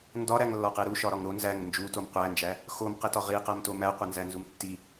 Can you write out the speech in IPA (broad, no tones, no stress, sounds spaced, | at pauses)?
n d ɒ ɾ æ ŋ lː ɒ q e ɾ u ʃ ɒ ɾ ɒ ŋ ɾ o n z æ ŋ n d͡ʒ u t o m qʷ æ n d͡ʒ æ | x o m q e t ɒ ʁ i q æ m t o m æ qʷ e n z æ n z u m tː i